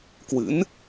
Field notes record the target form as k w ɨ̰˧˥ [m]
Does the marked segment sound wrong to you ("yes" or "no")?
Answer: yes